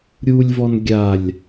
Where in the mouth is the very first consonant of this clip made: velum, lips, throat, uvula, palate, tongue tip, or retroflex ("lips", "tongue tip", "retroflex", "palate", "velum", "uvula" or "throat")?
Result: tongue tip